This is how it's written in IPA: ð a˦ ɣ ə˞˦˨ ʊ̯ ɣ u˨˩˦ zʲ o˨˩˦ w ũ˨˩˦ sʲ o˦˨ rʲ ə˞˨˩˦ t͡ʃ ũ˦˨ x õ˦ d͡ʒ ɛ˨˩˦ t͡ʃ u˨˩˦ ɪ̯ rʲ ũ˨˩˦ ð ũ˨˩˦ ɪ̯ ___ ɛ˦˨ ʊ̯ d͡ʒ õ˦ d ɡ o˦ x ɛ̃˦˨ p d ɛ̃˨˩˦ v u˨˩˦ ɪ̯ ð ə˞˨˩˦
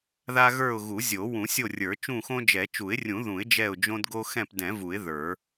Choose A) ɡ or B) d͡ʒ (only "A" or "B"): B